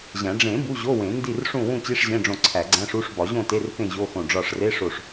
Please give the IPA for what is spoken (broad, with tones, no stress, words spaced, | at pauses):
ʑæ̃˨˩˦ ɖ͡ʐẽ˨˩˦ bu˧˥˧ʑo˧˥˧wẽ˨˩˦ ndi˥˨rʂũ˥˨ wũ˥˨t͡ɕi˧˥˧ʂʑẽ˧˥˧ɖ͡ʐõ˧˩ ǀʰæ˨˩˦ɡ͡ǀæ̃˧˥˧ʂu˧˥˧ʂ bɒ˨˩˦ʑõ˥˨te˧˥˧r pẽ˥˨ʑo˧˥˧xõ˧˩ ɖ͡ʐɒ˧˩ʂre˧˥˧ʂo˧˩ʂ